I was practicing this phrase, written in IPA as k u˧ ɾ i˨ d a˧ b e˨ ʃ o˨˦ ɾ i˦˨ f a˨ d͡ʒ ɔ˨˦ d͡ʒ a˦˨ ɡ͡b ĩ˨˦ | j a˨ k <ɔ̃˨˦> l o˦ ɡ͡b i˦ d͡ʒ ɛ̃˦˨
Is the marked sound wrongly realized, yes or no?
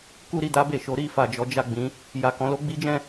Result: no